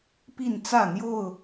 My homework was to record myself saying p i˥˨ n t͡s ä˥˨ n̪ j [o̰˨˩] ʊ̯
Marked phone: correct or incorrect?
incorrect